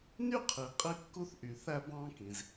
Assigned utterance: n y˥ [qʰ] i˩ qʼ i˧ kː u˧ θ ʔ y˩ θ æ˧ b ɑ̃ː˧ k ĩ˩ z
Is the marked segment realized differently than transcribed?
no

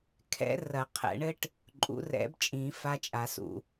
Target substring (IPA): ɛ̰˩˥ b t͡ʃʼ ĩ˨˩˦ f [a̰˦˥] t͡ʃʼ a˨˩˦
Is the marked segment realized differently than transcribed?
yes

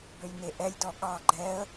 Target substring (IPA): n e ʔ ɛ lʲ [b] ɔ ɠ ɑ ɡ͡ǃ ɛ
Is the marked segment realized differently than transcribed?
yes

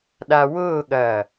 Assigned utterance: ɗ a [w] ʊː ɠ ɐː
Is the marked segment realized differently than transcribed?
no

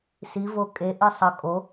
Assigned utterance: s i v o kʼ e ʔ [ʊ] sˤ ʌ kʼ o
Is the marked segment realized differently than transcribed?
yes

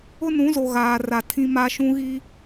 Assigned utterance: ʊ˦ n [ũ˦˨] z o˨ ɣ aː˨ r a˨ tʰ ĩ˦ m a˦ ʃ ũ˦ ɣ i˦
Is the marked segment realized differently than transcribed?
yes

